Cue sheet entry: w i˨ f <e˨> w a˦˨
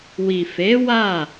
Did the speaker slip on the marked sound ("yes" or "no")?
yes